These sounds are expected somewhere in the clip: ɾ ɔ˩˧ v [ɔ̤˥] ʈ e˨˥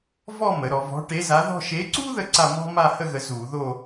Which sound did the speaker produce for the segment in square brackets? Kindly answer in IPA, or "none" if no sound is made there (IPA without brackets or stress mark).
ɔ̤˨˥